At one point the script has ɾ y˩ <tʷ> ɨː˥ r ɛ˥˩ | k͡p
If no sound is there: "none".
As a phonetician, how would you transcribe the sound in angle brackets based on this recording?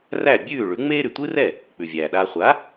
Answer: tʷ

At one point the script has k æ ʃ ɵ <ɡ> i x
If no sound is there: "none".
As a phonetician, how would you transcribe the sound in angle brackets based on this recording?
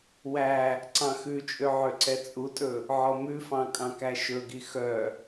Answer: ɡ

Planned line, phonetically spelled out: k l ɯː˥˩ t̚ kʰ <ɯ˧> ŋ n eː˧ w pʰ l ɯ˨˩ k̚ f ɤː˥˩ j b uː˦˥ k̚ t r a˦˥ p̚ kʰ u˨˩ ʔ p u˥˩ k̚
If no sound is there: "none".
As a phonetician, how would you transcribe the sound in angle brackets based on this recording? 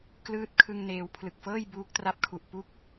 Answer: ɯ˧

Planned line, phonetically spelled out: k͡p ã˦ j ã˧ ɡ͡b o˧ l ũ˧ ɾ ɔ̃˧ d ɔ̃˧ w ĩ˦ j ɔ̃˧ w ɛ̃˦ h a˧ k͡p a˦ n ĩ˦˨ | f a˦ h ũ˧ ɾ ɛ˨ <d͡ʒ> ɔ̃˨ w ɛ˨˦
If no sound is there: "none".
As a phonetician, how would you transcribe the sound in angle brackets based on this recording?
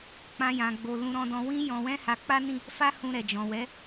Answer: d͡ʒ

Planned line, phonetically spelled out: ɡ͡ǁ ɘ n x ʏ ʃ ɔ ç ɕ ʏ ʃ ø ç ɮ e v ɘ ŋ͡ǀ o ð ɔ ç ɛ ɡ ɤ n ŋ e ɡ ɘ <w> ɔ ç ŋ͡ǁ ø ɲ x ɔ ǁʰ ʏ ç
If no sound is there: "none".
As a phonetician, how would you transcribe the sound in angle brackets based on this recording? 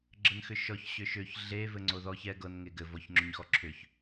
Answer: v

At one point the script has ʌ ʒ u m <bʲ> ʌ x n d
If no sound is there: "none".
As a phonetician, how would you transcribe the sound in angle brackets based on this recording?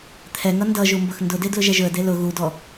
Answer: b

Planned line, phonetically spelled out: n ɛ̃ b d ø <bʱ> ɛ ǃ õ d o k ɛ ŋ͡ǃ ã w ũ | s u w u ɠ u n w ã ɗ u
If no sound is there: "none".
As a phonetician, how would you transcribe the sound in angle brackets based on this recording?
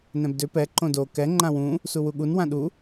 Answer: p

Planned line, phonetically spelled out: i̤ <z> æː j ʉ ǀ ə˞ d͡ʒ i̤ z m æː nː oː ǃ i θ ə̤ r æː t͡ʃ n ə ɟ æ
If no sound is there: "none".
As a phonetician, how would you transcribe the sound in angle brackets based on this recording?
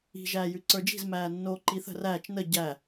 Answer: ʒ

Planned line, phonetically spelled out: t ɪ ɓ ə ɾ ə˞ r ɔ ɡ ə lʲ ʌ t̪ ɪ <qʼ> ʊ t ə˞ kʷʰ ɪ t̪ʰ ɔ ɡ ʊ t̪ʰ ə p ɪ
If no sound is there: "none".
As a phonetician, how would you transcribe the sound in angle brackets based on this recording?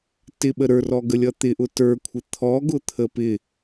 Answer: ʔ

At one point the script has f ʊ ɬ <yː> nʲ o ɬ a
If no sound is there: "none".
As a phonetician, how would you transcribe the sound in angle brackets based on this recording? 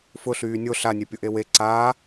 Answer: yː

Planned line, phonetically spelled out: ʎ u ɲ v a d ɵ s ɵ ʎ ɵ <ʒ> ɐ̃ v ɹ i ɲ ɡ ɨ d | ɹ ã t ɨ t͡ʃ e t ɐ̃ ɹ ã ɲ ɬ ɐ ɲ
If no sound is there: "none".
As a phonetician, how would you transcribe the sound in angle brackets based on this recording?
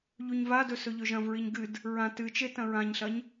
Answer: ʒ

